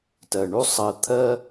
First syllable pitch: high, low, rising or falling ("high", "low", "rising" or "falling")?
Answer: low